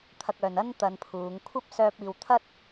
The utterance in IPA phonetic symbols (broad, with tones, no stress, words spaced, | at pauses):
t̪ʰɐ˧k̚œː˨n ɐ˥n t̪ɐ˧npʰuː˨˧ŋ kʷʰɐ˥p̚sœː˧p̚iː˨wt̪ʰɐ˥t̚